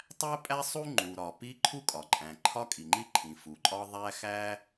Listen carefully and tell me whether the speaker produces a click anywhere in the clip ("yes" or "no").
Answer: yes